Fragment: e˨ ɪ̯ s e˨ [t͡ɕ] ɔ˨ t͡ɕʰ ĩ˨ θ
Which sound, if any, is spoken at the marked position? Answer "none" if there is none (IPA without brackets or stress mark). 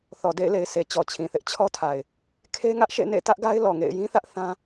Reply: t͡ɕ